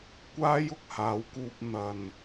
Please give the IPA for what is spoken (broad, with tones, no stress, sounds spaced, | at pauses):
kʷ aː˥ j ʊ˨ k̚ h aː˨˧ w k uː˧ p̚ n̪ ɐ˨ n